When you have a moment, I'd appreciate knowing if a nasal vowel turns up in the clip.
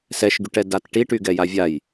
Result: no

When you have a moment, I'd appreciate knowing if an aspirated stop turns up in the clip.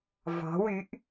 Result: no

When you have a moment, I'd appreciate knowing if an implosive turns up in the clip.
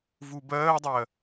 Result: no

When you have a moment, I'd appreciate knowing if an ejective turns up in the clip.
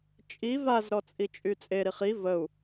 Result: yes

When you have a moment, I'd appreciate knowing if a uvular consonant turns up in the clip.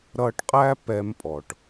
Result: yes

